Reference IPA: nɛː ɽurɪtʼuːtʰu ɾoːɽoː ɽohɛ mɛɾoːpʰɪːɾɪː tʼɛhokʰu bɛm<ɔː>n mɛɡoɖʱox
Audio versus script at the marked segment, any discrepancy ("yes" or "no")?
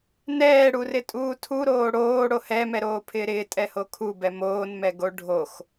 yes